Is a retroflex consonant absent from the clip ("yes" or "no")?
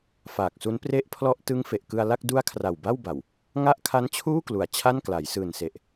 yes